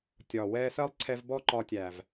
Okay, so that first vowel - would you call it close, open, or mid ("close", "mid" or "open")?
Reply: open